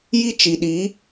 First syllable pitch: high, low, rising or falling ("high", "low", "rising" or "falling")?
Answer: high